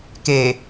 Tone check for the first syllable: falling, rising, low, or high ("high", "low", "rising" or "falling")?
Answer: low